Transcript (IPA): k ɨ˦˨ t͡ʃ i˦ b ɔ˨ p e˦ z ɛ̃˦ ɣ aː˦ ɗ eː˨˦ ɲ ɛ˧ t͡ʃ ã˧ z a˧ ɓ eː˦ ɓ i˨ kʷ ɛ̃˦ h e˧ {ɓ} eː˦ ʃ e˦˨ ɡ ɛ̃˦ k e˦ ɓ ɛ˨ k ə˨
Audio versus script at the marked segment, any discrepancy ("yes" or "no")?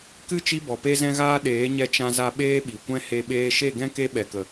no